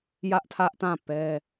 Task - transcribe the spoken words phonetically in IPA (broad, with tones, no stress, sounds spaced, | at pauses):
j ä˦ ʔ tʰ ä˦ ʔ t ã˦˨ p ɛ˦